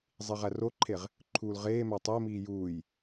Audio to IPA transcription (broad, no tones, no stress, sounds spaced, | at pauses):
zˤ i ʁ æ r o ǃʰ e ʁ | ǃʰ uː l ʁ eː m æ tˤ e m iː j uː j